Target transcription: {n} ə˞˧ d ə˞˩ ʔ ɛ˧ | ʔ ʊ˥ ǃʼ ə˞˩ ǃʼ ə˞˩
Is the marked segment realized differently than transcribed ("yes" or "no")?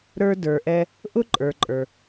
yes